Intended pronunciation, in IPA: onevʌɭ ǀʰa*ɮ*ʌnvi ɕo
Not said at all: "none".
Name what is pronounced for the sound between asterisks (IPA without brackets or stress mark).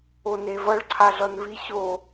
ɮ